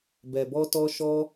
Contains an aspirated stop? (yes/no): no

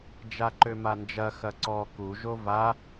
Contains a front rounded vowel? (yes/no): yes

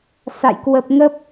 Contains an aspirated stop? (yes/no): no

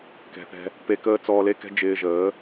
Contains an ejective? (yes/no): no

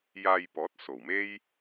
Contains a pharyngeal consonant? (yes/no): no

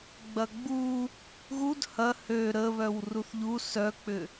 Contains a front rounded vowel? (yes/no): yes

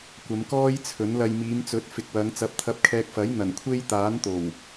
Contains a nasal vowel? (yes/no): no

